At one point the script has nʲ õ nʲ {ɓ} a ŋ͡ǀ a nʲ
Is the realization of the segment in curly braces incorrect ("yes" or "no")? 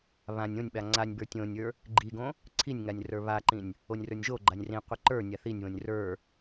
no